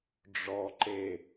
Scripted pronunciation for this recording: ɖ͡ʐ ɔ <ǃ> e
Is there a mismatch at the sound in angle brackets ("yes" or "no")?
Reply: no